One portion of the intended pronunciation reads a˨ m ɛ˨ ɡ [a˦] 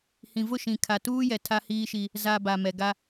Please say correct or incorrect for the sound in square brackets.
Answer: correct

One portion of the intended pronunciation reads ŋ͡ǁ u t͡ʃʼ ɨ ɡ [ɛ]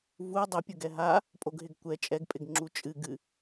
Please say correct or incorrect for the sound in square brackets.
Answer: incorrect: ɨ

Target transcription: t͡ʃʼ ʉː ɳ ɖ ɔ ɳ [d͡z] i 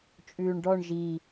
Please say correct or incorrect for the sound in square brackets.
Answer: incorrect: ʒ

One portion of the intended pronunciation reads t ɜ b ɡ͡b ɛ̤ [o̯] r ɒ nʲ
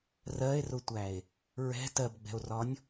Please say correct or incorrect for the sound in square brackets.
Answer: correct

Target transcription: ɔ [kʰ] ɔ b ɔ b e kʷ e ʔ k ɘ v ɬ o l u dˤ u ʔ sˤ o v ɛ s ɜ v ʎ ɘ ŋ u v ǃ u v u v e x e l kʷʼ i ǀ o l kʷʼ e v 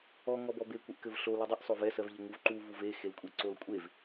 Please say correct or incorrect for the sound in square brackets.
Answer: incorrect: ŋ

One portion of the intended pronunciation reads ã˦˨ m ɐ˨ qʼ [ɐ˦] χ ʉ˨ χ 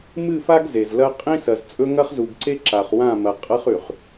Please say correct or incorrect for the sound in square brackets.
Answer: correct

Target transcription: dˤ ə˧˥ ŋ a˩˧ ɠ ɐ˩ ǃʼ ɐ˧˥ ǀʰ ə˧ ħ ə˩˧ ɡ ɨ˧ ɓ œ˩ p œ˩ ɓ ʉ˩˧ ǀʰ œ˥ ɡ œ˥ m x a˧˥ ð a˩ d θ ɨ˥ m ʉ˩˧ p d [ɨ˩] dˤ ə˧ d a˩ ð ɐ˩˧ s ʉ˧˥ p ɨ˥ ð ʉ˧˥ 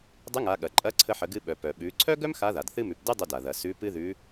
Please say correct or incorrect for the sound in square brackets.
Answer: incorrect: ɨ˥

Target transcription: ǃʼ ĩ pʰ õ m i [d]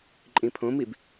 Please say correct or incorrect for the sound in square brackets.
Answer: incorrect: b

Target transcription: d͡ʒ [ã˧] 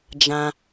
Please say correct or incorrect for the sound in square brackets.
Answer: correct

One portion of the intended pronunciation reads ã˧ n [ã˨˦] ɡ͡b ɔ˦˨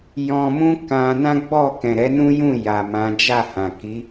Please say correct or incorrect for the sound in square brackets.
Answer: incorrect: ã˦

